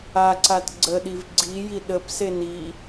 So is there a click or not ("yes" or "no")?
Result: yes